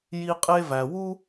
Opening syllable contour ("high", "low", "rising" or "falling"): high